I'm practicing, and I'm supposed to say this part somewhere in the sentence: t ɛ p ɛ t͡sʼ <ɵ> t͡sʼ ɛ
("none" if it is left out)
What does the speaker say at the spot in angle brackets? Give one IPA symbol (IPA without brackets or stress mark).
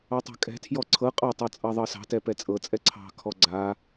ɤ